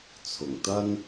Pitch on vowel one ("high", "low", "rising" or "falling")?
low